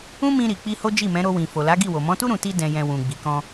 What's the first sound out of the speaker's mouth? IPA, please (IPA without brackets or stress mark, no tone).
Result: ũ